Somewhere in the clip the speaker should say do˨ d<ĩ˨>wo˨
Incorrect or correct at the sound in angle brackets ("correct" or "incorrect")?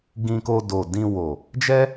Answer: incorrect